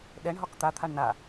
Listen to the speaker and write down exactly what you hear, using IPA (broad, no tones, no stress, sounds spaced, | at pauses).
ɗ ɛ ɳ ɦ ɒ k t̪ a t̪ʰ a ɳ n a